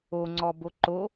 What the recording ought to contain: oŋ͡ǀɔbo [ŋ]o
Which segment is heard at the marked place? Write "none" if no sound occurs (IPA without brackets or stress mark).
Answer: ǃ